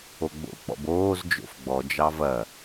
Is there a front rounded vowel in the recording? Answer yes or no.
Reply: no